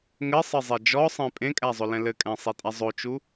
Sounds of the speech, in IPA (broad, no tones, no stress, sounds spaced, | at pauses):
ŋ ɘ sˤ ɘ zˤ e d͡ʒ ɔ sˤ ẽ pʼ ẽ kʼ æ zˤ ɵ l ɛ̃ l ɘ kʼ æ̃ sˤ e tʼ a zˤ o t͡ʃ u